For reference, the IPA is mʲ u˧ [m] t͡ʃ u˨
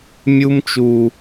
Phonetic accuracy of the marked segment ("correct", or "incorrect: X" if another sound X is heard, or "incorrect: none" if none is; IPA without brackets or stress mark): correct